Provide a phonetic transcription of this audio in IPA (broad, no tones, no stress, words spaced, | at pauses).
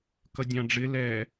kʌdʲɑ̃ɖ͡ʐɪ lɛ